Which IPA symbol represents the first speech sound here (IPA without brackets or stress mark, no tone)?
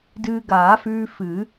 d